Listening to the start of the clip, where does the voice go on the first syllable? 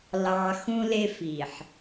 low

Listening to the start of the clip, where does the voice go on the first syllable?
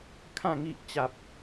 falling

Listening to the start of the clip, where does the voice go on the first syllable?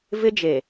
high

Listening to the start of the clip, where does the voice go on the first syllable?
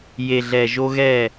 low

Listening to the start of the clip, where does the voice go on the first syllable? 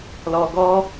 low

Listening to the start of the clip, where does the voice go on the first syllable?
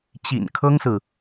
low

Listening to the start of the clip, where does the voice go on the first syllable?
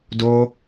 high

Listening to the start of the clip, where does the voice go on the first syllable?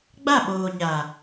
falling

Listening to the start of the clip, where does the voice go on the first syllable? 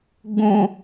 high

